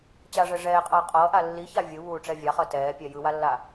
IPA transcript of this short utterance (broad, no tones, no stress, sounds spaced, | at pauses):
t͡ɕ a ʐ ɛ ʐ ɛː qʼ ʌː qʼ ʌː ʔ a lː i ç a vʲ ɯ β uː ʈ͡ʂ ɛ vʲ a χ ʌ t ɛː pʲ ɛ j ɯ w a lː a